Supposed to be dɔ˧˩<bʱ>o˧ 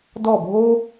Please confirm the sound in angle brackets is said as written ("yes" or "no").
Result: yes